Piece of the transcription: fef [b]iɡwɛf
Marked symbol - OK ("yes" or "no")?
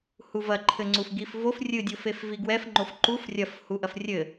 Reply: no